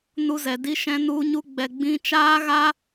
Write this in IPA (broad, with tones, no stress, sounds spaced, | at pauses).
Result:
n u˧ z ɛ˨ d i˧ ʃ ɛ̃˧ n u˧ ɲ u˧ ɡ͡b ɛ˨ ɡ͡b ĩ˧ t͡ʃ aː˦ ɣ a˦